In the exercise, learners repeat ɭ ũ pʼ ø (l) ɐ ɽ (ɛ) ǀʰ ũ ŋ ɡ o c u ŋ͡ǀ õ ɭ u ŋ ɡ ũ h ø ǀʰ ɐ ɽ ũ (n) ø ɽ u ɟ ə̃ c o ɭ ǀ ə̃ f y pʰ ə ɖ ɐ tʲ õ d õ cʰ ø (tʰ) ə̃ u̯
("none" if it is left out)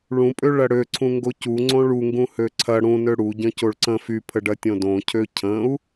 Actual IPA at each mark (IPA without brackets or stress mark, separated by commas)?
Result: ɭ, ø, n, cʰ